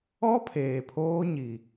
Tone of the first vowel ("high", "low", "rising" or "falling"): high